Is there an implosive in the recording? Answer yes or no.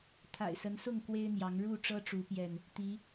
no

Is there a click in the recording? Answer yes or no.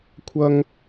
no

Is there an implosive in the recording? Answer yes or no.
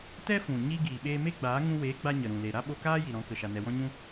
yes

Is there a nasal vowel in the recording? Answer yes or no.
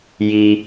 no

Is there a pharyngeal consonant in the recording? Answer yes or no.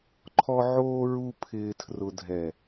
yes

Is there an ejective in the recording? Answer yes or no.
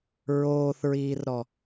no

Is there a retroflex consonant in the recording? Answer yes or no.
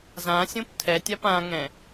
no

